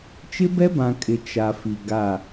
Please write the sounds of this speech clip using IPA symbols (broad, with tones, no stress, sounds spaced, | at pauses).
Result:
t͡ʃ ɪ˦ b ɛ˦ b ã˨ kʼ ɪ˨ t͡ʃ a˨ f i˨ ɡ a˦˨